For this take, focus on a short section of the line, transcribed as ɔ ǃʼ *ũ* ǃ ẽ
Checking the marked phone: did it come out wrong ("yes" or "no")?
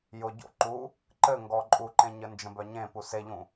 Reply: yes